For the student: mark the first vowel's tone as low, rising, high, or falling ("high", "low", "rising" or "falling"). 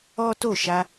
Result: high